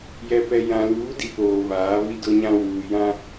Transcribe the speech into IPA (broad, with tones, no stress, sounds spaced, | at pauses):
j ɛ˨ p ɛ˨ j ã˨ l uː˨˦ d i˨ p oː˨ β aː˨˦ β i˦ d ʊ˦ ɲ ã˦ w uː˨ j ã˦